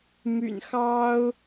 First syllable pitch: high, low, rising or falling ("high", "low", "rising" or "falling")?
low